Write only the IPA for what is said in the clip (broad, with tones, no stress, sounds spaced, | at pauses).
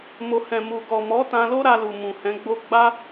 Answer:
m o˨ h ɛ̃˨ m u˨ ɡ ɔ˨ m ɔ˨˦ t ã˧ l o˦ ɾ a˧ l u˨ m ũ˨ h ɛ̃˨˦ ɡ͡b o˦ ɡ͡b a˦